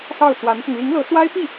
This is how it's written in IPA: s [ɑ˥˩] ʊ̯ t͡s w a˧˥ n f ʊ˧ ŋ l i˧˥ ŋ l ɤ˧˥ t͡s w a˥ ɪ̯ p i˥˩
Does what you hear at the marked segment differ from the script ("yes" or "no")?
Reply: no